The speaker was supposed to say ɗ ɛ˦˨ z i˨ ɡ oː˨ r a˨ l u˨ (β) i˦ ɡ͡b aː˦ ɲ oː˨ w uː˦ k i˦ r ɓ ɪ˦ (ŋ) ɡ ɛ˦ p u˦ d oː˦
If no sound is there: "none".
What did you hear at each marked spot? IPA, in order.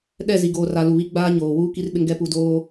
β, ŋ

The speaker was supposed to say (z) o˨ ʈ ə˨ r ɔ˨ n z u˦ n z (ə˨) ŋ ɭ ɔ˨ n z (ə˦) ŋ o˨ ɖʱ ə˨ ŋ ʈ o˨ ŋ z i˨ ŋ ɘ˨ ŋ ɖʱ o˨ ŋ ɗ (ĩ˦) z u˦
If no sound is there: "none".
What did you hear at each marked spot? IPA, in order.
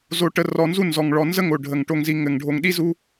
z, ɔ˨, ə˦, i˦

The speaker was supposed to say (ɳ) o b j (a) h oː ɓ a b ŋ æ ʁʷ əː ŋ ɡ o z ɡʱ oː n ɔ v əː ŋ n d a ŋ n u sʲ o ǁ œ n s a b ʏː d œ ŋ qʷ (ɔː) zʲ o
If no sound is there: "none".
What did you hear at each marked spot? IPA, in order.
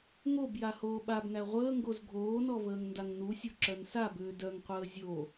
ŋ, a, əː

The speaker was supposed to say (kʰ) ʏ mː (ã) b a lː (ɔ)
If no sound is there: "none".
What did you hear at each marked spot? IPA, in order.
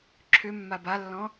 ǁʰ, a, ɔ̃

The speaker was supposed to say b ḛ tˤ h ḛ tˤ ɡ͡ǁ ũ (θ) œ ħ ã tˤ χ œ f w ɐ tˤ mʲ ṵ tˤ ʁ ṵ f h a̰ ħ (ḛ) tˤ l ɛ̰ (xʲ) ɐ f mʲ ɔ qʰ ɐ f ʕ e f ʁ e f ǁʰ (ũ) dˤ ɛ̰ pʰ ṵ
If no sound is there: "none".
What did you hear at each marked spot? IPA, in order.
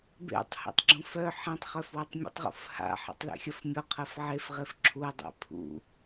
f, ɛ̰, xʲ, u

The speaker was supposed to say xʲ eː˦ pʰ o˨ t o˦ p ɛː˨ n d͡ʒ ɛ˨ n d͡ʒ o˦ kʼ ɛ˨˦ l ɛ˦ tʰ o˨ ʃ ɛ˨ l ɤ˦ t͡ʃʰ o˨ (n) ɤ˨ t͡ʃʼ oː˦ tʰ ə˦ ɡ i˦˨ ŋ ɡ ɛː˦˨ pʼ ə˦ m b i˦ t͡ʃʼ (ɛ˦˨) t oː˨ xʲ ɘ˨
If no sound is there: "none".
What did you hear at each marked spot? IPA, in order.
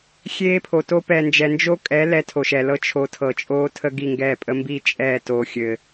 tʰ, ɛː˦˨

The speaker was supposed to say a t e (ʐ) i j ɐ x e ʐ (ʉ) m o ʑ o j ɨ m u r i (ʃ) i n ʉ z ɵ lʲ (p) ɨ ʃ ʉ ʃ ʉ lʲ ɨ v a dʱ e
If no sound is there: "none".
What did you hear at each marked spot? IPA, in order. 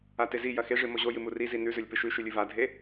z, ɨ, z, p

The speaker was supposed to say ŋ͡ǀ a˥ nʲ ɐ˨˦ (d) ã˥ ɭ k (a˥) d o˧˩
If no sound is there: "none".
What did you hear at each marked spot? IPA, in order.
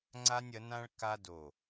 n, a˥

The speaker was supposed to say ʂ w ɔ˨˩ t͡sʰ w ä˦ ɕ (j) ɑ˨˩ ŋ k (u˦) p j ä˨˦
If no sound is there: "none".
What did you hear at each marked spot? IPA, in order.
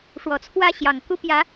j, u˦

